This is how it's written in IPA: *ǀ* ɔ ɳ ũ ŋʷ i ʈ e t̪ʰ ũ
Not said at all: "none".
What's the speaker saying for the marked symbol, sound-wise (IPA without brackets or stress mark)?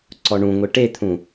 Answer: ǀ